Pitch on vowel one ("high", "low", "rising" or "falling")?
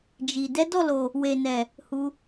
low